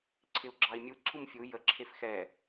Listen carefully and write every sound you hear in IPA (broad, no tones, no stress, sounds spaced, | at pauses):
ǀʰ ɪ u̯ ɡ͡ǁ ɑ i̯ mʲ u ǀʰ u m fʲ u j ə ǁʰ e f x ɛ